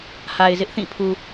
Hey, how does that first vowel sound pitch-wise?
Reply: low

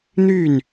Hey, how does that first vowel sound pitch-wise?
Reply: falling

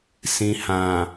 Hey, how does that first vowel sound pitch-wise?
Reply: low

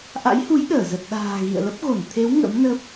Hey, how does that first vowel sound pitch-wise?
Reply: rising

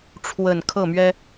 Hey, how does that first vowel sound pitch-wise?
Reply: low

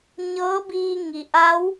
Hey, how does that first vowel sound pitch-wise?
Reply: rising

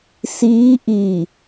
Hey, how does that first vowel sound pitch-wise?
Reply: rising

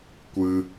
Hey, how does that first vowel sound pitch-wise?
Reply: high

